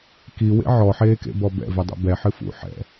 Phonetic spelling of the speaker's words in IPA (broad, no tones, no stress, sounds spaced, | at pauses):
k i w ḛ ʕ ɔ ħ eː k ḛ b ɔ b ɛ̰ v ɨ dˤ ṵ b ɛ ħ ɨ f ṵ ħ ɛ̰